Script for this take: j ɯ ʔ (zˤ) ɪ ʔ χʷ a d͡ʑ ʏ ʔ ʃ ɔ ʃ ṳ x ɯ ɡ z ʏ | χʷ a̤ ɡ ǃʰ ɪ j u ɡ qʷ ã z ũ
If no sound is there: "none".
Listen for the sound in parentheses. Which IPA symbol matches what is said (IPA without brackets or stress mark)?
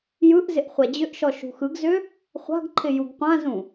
z